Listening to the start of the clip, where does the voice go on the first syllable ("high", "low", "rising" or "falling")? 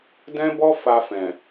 high